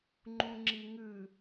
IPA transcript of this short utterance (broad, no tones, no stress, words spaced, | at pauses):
ŋ͡ǃũŋ͡ǁiŋʉ